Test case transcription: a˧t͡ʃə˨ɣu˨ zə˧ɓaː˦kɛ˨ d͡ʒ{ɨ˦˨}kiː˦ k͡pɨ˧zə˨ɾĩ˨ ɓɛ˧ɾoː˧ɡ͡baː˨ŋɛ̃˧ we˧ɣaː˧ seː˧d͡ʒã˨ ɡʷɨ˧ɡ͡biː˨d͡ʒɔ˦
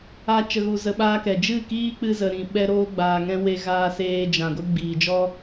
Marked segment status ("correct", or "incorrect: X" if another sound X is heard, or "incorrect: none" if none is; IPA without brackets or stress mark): correct